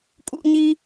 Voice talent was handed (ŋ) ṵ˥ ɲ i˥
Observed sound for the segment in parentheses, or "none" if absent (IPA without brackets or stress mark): kʼ